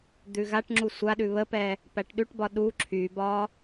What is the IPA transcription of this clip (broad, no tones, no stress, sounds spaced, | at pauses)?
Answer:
d̪ ʉ ɣ a ʈ ŋ͡ǁ u sʷ a ɗ ʉ β ə p ɛ | p æ ʈ ɗ ʉ ʈ b ɒ ɗ u ǁʰ y b ɒ